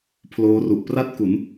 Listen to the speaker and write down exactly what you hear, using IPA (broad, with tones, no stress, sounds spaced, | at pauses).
pʰ l oː˦˥ r u˨˩ ʔ p r a˥˩ t̚ k u˩˦ n